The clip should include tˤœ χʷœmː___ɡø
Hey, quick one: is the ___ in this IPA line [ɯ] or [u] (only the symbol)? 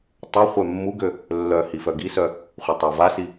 u